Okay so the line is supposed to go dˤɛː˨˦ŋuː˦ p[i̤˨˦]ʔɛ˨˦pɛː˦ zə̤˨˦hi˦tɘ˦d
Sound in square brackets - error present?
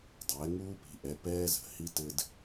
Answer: no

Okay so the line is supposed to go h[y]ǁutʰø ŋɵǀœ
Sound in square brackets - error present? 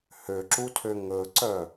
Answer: yes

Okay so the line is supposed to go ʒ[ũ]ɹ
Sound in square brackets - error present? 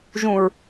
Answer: no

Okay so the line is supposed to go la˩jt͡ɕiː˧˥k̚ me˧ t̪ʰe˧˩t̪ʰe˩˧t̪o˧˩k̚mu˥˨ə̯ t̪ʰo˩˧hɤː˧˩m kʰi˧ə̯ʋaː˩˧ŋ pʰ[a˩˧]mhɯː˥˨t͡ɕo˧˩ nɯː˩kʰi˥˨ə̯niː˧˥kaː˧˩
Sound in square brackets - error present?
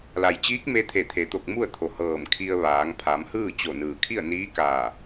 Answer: no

